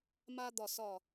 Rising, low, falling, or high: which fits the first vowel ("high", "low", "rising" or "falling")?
high